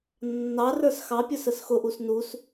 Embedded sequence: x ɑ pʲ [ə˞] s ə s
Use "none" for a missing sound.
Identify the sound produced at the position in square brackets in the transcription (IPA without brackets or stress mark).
ə˞